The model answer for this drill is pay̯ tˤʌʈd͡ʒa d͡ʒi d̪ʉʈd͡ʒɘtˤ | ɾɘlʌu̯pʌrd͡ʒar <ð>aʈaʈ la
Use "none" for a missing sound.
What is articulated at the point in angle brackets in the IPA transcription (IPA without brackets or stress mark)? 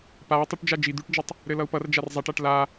zˤ